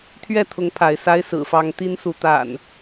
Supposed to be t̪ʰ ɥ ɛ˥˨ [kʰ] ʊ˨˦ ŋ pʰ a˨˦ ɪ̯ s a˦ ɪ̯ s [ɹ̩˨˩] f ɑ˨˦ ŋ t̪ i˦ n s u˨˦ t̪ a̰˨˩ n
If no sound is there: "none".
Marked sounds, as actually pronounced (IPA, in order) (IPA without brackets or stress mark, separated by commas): t̪ʰ, ɹ̩˨˩